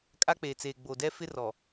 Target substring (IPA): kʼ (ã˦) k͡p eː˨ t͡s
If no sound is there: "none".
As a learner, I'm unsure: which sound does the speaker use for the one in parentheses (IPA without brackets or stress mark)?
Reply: a˦